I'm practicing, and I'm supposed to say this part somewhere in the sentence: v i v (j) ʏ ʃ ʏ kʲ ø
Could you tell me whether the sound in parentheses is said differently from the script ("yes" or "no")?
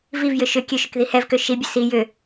no